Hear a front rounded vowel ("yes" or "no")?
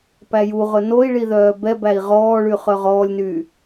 yes